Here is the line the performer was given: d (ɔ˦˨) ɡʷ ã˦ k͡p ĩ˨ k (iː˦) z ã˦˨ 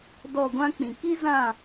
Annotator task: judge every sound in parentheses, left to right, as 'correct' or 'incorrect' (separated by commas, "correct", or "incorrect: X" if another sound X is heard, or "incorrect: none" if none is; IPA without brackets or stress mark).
correct, incorrect: i˦